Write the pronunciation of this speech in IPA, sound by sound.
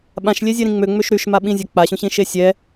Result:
ɓ ã ʃ lʲ e zʲ e ɾ ĩ ŋ͡m ø ŋ͡m ø ʃ ɾ y ʃ m a ɓ ĩ zʲ a k͡p a ɕ ũ ɕ ĩ ʃ e sʲ ɛ

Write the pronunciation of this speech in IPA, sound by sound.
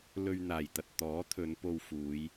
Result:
l ɵ˧ ɥ n̪ aː˨˩ j t̪ ɐ˧ t̚ t̪ ɔː˨˥ t̪ʰ ɵ˨˧ n p o˧ w f uː˨˧ j

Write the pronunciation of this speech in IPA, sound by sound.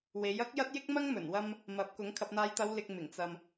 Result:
w e˨˥ j ɐ˥ k̚ j ɐ˥ t̚ j ɪ˥ k̚ m ɐ˥ ŋ m ɵ˨˩ n w ɐ˧ m | m ɐ˨˥ p̚ k ʊ˨˥ ŋ kʰ ɐ˧ p̚ n̪ aː˨˧ j t̪ ɐ˨˧ w l ɪ˨ k̚ m ɪ˨˩ ŋ t͡s ɐ˨ m

